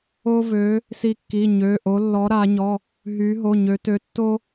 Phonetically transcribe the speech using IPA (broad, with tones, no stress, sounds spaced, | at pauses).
o˥ v ø˧˥ | s i˥ kː i˧˥˧ ɲ ø˧˥˧ ʔ o˧˥ lː ɔ˧˥ ɾ a˧˥ ɲ ɔ˧˥˧ | ɦ y˧˥ ɦ o˧˥˧ ɲ ø˧˥ t ø˧˥ tː o˥